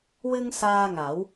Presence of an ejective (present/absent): absent